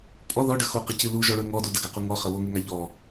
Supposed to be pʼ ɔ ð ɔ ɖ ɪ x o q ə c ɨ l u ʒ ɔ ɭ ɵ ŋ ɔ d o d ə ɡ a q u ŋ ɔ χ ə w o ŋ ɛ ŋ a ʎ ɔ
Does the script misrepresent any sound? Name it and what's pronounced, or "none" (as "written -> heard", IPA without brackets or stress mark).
ɪ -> ə